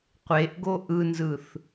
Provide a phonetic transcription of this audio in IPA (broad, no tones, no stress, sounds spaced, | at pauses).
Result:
qʷ e ʔ ɡ o ʔ ɯ n z ɯ θ